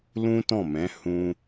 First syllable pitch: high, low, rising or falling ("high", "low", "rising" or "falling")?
high